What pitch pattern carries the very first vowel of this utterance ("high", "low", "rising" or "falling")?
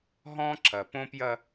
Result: high